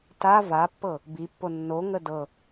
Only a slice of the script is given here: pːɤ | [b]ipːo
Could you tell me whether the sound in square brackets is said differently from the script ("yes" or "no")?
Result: no